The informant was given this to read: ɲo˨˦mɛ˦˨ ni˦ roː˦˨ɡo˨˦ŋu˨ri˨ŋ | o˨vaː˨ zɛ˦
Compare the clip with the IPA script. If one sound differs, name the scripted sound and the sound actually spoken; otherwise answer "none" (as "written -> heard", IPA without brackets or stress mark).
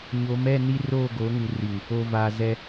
none